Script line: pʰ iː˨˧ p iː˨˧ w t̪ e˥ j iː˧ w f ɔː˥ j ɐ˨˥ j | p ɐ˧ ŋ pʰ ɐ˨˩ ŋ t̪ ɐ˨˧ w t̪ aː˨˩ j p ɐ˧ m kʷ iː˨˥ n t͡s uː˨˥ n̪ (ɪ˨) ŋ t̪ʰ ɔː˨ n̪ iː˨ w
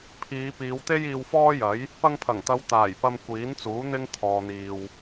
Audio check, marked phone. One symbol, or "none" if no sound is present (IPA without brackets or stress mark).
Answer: ɪ˥